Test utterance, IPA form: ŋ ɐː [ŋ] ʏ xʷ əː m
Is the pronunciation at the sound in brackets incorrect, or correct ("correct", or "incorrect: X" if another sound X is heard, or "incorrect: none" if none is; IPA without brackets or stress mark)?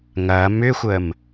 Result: incorrect: m